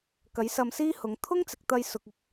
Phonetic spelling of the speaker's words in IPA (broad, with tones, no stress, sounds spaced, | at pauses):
k ɐ˨˥ j s ɐ˧ m s iː˥ h ʊ˨˧ ŋ t̪ʰ ʊ˥ ŋ t͡s ɪ˨ k̚ t̪ ɐ˧ j s ʊ˨ k̚ ɪ˧ k̚